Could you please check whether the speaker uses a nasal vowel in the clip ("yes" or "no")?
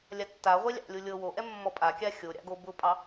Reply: no